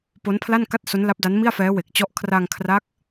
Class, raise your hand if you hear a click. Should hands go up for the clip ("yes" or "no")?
no